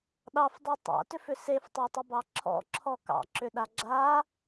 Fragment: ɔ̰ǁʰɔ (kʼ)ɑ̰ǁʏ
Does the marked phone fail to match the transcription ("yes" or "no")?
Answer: yes